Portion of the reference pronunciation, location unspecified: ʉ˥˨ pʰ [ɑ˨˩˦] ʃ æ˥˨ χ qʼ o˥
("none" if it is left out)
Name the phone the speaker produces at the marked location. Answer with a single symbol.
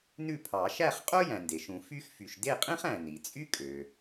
ɑ˨˩˦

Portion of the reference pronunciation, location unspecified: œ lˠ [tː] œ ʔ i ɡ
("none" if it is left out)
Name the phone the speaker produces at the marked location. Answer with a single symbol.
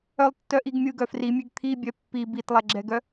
tː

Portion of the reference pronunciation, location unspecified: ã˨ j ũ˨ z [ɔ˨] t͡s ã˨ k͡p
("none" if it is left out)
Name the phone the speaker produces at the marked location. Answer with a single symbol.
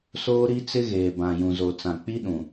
o˨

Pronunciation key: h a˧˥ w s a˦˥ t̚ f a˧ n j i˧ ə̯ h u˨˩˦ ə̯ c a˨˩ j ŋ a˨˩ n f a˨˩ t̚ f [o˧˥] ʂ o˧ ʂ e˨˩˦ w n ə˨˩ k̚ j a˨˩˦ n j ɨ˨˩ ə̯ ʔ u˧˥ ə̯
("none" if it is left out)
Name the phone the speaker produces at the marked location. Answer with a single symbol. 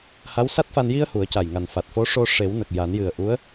o˧˥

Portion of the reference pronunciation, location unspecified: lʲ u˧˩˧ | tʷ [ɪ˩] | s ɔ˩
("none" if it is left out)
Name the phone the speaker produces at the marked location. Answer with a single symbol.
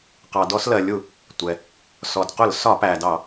ɛ˩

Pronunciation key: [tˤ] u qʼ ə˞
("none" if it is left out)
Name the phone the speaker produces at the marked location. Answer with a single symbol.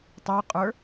tˤ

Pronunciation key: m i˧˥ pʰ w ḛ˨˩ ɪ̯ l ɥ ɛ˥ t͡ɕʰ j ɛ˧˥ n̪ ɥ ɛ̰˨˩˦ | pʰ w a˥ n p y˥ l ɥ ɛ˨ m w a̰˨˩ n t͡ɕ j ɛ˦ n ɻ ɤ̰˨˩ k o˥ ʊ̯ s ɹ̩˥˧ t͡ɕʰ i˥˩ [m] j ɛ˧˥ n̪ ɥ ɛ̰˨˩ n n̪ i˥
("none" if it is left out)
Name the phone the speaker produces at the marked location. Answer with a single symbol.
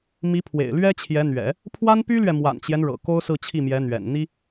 m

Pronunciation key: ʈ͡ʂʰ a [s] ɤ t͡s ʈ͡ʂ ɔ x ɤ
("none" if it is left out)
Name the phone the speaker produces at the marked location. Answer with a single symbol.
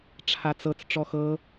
t͡s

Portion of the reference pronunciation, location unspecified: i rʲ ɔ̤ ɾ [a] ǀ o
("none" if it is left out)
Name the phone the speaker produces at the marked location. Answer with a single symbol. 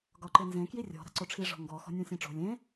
a̤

